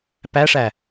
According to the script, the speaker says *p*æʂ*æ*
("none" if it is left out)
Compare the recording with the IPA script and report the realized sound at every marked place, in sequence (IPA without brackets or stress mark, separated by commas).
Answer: p, æ